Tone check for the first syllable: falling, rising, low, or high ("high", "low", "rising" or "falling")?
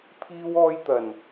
high